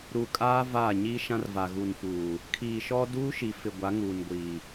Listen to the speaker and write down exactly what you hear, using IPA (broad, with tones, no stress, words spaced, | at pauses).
ɾu˨ kʼaː˦vaː˦˨ ɲiː˦ʃã˦rva˨ ɣu˨nfuː˨ | kʰiː˨ʃɔ˦ duː˦ʃi˨fɪ˨ ɡʷa˨˦ŋuː˨nɡʷiː˨